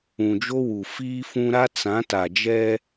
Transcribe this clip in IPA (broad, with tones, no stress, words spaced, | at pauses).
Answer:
ũ˨d͡ʒo˦wu˨ fiː˦fũ˦ ɾa˦t͡sã˨˦ ta˨d͡ʒɛ˦